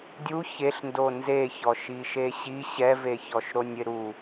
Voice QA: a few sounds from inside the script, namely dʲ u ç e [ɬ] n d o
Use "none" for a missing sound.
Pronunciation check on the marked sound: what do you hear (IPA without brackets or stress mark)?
ɬ